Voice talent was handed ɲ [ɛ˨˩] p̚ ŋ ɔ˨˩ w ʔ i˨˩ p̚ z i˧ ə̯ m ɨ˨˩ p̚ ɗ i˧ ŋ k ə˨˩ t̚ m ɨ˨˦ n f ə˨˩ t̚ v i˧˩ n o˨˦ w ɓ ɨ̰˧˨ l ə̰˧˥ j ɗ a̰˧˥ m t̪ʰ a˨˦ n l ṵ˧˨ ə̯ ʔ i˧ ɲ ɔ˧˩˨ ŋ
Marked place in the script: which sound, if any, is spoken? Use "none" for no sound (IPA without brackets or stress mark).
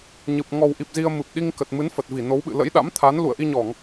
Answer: ɨ˨˩